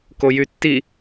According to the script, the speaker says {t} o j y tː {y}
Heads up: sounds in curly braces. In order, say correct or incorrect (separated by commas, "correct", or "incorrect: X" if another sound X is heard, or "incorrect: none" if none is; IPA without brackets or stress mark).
incorrect: k, incorrect: i